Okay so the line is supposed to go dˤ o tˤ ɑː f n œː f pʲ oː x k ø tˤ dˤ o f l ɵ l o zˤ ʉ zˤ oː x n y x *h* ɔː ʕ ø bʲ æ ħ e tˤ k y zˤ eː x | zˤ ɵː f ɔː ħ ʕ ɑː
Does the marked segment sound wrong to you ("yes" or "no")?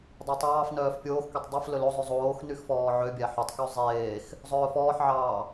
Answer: yes